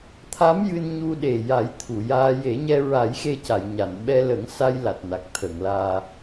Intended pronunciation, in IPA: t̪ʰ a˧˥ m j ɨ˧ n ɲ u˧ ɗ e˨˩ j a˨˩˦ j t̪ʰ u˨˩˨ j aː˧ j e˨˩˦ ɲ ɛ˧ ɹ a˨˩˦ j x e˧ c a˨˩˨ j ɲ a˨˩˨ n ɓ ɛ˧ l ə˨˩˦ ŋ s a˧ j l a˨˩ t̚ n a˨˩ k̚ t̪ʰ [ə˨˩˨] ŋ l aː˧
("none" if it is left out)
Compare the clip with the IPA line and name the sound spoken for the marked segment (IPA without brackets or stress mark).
ə˨˩˨